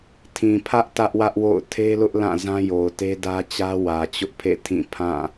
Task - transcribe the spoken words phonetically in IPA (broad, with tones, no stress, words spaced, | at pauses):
tʰĩ˨pʰä˦ʔ tä˦ʔwä˦ʔwo̰˦˨ʊ̯ tʰe˦lʊ˦ʔ lã˦˨ zã˦jo˨ʊ̯te˦dä˦ t͡ɕä˦wä˨t͡ɕʊ˦ʔpʰḛ˦˨ tʰĩ˦˨pʰã˦˨